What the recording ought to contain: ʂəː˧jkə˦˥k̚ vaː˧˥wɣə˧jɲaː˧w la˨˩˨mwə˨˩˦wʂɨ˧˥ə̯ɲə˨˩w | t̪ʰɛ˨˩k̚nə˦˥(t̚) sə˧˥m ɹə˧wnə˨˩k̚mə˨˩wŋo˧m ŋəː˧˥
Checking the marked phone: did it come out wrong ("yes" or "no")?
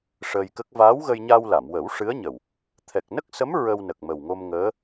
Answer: yes